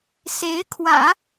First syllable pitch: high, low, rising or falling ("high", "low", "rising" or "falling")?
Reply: rising